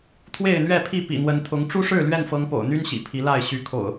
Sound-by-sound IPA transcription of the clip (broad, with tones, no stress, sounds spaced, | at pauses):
t̪ʰ w e˥˨ ɪ̯ n̪ ɥ ɛ˥˨ pʰ i˥˨ p ḭ˨˩ n̪ w ə˨˦ n t̪ʰ ʊ˨˦ ŋ ʈ͡ʂ u˦ ʂ ɻ̩˥˨ l ɥ ɛ˥˨ n f ɤ˨˦ ŋ p o̰˨˩ ʊ̯ n̪ y˦ n ɕ ḭ˨˩ pʰ i˨˦ l a˥˨ ɪ̯ ɕ y˨˦ kʰ o̰˨˩ ʊ̯